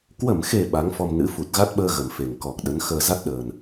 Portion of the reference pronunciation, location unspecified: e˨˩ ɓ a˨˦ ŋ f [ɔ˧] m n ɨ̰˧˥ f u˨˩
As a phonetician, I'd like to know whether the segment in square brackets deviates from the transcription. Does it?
no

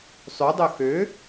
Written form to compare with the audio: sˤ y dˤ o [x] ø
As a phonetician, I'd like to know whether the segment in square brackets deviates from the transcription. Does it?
no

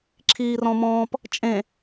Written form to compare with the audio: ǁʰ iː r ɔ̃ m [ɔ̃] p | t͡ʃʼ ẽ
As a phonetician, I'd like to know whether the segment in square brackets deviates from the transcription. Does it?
yes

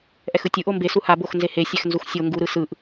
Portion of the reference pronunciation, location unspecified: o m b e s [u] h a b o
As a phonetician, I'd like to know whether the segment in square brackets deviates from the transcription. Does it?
no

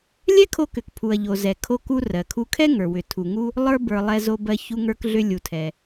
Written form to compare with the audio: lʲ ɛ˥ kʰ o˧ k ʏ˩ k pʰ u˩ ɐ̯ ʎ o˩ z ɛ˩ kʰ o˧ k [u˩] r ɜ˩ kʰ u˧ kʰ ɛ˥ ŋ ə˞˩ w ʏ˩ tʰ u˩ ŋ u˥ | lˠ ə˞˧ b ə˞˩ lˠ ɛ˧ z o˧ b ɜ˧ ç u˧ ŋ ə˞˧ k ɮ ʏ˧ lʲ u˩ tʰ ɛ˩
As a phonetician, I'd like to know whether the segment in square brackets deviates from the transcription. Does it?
yes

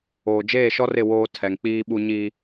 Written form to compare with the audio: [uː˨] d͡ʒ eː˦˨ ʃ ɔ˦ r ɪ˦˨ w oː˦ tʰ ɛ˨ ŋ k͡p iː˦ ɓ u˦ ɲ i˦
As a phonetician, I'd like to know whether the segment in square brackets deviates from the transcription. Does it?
yes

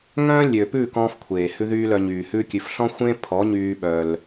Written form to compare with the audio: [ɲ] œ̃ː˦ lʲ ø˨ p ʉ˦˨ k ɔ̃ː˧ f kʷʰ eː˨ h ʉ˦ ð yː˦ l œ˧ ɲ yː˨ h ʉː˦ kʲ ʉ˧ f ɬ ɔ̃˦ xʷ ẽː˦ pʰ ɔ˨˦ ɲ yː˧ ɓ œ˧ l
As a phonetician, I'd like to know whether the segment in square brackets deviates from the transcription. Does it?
yes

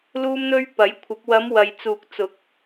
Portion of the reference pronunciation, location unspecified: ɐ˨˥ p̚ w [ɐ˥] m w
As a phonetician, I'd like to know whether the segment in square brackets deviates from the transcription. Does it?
yes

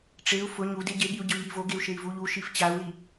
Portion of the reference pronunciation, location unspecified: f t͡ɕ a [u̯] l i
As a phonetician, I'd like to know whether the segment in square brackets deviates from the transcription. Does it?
no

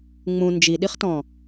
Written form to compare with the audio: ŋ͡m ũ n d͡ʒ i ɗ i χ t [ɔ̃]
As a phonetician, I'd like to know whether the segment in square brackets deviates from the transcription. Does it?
no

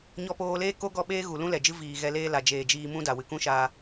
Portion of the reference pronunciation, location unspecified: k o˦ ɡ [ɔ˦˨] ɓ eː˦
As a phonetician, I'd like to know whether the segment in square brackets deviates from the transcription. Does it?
no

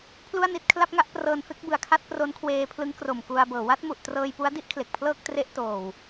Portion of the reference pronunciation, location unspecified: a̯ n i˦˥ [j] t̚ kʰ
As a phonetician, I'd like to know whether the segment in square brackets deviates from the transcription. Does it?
yes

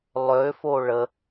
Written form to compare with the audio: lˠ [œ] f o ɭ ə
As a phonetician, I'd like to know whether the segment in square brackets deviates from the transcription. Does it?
yes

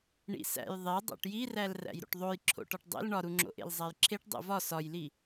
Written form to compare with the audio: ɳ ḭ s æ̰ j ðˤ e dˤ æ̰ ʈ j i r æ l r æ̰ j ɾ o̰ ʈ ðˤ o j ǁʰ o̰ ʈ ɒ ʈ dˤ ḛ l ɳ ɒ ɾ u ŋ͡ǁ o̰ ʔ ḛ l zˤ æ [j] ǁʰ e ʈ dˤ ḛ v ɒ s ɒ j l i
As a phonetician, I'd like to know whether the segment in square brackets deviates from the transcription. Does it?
no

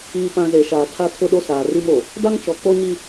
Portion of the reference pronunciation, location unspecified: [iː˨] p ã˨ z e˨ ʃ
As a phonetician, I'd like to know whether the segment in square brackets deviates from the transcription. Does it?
no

